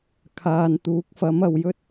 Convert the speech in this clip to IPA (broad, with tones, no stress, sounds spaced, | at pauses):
kʰ aː˨ n t̪ uː˨˥ k̚ f ɐ˨˥ m ɐ˨ w j ɵ˥ t̚